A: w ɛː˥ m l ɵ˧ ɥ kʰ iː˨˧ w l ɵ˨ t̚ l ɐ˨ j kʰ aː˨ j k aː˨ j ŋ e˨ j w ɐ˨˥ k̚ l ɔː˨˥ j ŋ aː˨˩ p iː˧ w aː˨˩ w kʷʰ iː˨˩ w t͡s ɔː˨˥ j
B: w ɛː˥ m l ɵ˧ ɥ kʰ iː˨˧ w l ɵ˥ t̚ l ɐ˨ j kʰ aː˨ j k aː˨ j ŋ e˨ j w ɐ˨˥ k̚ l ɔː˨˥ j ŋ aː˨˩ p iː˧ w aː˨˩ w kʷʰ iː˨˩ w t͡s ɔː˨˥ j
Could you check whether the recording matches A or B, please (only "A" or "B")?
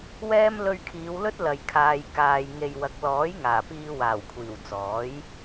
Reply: B